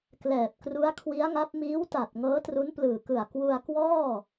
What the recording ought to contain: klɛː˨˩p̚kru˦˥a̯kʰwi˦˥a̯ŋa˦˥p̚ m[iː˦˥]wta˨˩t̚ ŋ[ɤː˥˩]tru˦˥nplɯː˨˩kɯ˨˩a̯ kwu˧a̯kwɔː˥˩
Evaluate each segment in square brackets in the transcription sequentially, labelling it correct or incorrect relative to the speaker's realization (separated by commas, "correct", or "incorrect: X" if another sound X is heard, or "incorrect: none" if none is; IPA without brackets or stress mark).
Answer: correct, incorrect: ɤː˦˥